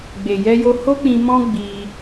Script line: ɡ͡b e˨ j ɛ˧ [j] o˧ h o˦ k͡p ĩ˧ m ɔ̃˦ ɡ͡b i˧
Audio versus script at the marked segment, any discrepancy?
no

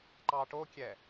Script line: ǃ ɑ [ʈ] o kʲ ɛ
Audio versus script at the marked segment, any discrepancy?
no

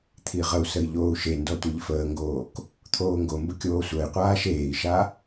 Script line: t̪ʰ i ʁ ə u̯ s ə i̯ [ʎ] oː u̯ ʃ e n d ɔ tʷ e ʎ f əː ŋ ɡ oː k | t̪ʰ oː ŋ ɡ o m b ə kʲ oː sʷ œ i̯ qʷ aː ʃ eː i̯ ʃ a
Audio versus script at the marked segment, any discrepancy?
no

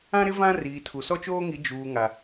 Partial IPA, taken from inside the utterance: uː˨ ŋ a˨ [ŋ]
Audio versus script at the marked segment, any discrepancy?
yes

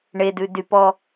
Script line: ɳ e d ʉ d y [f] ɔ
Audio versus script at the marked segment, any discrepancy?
yes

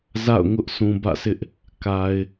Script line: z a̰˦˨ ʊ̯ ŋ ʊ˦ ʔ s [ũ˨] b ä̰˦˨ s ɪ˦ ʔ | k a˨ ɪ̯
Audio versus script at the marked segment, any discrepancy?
no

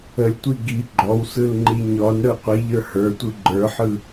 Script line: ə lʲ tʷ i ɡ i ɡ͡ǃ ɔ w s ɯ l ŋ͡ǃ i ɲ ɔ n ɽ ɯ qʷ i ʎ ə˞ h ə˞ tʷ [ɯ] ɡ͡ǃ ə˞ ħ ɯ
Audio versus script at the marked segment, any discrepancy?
no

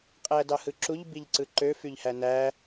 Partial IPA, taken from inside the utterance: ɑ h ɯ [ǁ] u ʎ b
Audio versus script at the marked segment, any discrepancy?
no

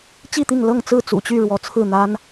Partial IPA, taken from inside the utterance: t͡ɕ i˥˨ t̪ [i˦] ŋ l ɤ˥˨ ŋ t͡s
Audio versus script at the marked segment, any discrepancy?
yes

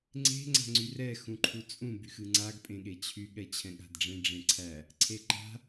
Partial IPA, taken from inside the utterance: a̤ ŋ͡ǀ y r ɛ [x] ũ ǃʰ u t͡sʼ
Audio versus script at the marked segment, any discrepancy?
no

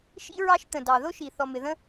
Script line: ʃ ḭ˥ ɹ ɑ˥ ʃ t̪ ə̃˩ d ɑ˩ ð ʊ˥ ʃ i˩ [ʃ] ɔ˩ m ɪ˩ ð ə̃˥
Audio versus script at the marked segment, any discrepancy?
yes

